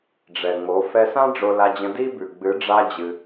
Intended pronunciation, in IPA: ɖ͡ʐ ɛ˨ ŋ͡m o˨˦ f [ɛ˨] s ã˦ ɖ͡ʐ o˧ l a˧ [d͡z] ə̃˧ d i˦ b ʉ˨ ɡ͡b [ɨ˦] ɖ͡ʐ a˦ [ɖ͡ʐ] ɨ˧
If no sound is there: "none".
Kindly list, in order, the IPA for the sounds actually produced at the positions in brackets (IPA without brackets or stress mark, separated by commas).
ɛ˧, d͡ʑ, ɨ˨˦, d͡ʑ